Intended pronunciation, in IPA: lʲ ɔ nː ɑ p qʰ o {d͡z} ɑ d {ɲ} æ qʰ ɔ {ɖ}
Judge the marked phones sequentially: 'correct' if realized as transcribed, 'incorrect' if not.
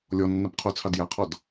incorrect: t͡sʰ, incorrect: j, incorrect: d

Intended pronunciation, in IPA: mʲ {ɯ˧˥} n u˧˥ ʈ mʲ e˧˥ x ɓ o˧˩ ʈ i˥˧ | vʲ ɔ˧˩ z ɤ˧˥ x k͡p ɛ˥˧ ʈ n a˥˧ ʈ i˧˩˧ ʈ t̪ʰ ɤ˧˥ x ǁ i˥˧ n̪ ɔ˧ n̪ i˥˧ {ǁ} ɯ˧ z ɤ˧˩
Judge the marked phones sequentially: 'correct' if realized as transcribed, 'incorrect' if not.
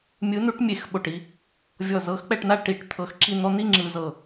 correct, incorrect: ŋ͡ǁ

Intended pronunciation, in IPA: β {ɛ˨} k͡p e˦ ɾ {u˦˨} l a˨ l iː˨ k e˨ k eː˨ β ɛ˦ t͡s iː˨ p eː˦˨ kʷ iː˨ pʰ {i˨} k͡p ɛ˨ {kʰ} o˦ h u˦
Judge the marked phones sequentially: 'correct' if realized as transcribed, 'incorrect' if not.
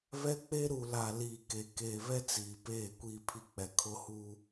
incorrect: ɛ˦, incorrect: u˨, correct, correct

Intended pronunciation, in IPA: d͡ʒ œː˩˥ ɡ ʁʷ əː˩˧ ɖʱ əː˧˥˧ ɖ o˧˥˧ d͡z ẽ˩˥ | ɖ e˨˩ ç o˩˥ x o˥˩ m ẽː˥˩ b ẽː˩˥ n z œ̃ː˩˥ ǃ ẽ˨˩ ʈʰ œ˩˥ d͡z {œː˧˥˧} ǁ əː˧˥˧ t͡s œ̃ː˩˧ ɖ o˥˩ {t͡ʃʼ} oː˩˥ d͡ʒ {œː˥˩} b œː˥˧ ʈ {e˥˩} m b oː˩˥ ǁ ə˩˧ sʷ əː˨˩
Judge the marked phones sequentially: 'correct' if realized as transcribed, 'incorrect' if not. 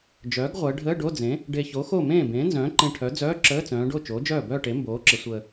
correct, incorrect: t͡ʃ, correct, incorrect: e˩˥

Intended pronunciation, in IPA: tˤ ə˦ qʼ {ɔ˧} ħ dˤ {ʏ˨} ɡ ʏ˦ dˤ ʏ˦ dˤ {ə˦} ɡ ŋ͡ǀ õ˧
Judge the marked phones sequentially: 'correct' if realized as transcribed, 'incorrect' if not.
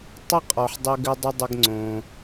incorrect: ɔ˨, incorrect: ʏ˧, correct

